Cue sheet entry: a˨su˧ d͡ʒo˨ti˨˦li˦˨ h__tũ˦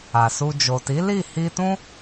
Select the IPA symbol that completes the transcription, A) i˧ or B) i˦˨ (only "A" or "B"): A